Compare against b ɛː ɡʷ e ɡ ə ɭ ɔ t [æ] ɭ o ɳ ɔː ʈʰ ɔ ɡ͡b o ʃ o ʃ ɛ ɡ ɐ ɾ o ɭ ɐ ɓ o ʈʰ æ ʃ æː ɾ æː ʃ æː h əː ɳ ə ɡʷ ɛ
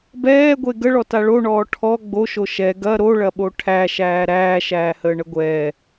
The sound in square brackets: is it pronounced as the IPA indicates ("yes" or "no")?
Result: no